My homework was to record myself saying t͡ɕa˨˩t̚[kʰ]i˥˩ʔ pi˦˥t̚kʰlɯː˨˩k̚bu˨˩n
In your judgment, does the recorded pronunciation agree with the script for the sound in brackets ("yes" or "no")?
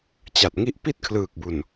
no